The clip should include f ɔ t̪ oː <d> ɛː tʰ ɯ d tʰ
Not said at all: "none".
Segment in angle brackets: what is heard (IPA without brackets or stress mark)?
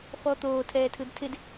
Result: tʰ